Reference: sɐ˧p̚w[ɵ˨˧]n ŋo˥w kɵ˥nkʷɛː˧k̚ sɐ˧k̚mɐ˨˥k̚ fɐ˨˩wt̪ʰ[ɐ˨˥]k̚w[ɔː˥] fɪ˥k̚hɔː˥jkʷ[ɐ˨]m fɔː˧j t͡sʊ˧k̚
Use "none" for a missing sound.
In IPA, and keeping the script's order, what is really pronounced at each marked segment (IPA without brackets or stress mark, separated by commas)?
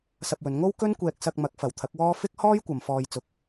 ɵ˨˧, ɐ˨˥, ɔː˥, ɐ˨